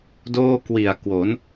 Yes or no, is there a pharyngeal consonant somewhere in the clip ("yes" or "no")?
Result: no